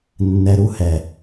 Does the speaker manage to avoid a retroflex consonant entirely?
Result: yes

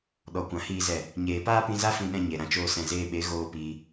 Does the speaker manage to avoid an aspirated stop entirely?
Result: yes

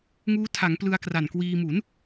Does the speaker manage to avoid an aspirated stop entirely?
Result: no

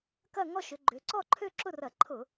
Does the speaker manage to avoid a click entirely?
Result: no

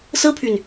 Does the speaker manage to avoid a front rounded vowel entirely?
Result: no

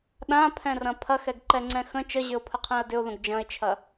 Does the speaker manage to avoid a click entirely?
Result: no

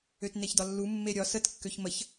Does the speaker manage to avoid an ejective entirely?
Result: yes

